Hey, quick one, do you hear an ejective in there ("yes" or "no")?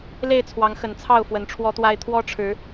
no